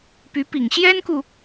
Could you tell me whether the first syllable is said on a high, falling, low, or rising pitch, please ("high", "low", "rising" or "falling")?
rising